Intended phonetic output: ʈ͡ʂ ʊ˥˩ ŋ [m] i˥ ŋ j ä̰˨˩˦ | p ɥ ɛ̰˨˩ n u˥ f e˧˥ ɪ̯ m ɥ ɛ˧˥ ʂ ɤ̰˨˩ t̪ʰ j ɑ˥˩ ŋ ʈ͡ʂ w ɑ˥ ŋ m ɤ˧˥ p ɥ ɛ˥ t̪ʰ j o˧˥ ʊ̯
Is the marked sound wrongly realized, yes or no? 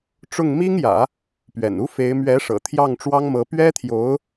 no